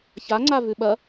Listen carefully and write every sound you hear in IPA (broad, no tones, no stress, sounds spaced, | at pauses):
ç a ŋ͡ǀ a v ʉ ɓ ɐ